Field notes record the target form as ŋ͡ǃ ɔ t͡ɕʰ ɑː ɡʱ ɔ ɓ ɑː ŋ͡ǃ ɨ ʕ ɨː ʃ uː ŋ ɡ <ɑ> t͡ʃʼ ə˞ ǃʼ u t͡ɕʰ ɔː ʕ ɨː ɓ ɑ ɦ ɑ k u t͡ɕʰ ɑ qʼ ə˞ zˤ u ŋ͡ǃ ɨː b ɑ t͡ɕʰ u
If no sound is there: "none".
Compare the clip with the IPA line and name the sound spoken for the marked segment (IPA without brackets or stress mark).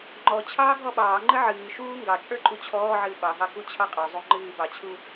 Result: ɑ